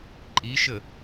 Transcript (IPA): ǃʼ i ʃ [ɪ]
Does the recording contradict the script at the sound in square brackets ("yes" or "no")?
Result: yes